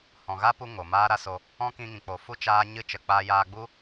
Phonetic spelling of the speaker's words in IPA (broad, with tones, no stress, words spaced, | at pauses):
hɔ̃˨ɣa˦pu˧ ŋo˨maː˦ɾa˦so˧ | ɔ̃˦kĩ˧ŋĩ˨k͡po˨ fu˦ t͡ʃaː˦ɲɨ˦ t͡ʃə˨k͡paː˧jaː˧ɡ͡bu˦